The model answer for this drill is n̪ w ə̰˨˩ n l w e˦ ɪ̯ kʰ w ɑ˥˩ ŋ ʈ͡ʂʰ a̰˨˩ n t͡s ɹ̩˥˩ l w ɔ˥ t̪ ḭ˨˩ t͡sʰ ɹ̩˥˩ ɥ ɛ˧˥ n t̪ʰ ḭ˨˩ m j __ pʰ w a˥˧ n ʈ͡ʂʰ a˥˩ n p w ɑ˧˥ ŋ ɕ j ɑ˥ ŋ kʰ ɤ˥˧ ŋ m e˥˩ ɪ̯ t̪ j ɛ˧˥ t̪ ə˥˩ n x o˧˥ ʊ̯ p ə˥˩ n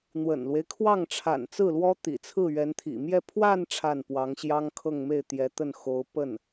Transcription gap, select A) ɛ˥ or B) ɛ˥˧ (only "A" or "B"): B